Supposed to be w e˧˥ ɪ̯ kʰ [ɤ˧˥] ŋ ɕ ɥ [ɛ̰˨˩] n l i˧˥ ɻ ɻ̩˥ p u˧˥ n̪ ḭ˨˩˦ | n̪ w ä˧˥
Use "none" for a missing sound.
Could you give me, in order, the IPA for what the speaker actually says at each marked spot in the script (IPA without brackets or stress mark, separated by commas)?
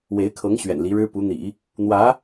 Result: ɤ˧˥, ɛ̰˨˩